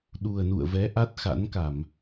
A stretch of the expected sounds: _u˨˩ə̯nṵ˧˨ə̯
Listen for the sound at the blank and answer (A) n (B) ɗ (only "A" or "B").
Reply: B